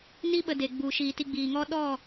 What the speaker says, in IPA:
n i˦ ɓ ə˧ d e˨ ɡ͡b u˨ ʃ iː˨ t i˧ ɡ͡b iː˨ ŋ ɔ˦ ɗ ɔ˦˨

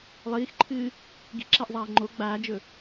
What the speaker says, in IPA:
lˠ iː x ǃʰ ɨː | ɡ i̤ ǁ æ ʔ zˤ æː ŋ͡ǃ o ɡ͡b aː d͡ʒ ɵ

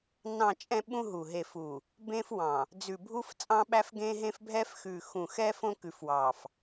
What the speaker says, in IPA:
n ɑ̃˨ t͡ʃʼ ɛ̃˦ ɓ ũ˦ ɦ u˨ ɦ e˨ f u˨ | b ẽ˦ f w ɑ̃˨ | d͡z ʉ˨ bʱ u˦ f t͡sʼ ɑ̃˦ ɓ æ˦ f ɡ ẽ˦ ɦ ẽ˦ f bʱ ɛ˦ f x ʉ˨ x ũ˨ x ɛ˦ f õ˦ k ʉ˨ f w ɑ˨ f

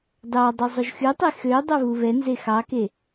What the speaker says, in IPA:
d ɑ dˤ y zˤ ɵ ʒ x y tˤ e x ø dˤ ɵ β u β ɛ n z e x ɑ k e

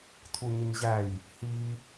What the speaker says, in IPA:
tʰ u ɲ ə ɲ ʑ æ j | h i

